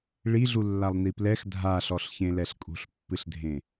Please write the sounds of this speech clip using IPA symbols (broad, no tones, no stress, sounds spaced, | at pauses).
ɭ i ɮ u lː a lˠ n i p l ɛ x dʱ a ɬ ɔ ɬ ç ẽ l ɛ ɬ kʼ ṳ ɬ pː ɨ ɬ dʱ ẽ